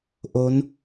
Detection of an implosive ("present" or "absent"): absent